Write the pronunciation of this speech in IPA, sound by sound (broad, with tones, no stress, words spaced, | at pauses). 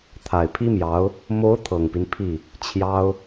t̪ʰa˨˩ɪ̯pʰi˥mjɑ˧˥ʊ̯ | mo˧˥ʊ̯ t̪ʰɤ˨˩ŋpi˦npʰi˥˩ | t͡ɕʰjɑ˥ʊ̯